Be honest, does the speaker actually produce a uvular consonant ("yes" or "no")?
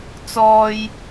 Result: no